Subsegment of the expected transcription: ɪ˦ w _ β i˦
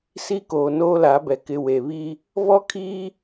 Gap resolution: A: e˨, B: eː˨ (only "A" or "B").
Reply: A